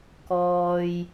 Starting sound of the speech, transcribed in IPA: k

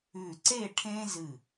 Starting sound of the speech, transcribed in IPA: ʉ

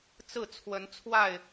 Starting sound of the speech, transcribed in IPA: t͡s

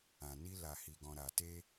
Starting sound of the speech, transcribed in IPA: ã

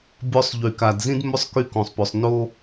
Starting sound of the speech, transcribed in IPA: bʲ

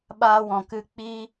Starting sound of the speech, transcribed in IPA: ɓ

